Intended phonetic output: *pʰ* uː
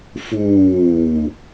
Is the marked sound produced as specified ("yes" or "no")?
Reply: no